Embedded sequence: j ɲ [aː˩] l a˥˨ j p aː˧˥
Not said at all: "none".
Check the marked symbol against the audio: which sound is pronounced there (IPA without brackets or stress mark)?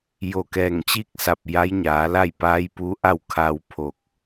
aː˩˧